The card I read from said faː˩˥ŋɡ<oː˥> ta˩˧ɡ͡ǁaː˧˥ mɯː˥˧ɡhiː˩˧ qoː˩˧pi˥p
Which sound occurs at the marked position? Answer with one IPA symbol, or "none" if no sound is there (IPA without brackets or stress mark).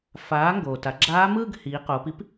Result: oː˩